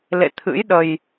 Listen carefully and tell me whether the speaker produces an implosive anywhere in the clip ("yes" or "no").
yes